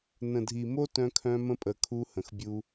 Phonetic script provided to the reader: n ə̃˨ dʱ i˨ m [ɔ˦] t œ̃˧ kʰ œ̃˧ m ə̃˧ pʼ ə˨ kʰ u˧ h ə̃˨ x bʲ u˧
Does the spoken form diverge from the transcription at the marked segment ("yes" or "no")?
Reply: yes